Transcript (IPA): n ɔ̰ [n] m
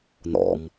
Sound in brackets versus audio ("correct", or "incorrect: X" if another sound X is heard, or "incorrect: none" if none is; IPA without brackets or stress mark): incorrect: none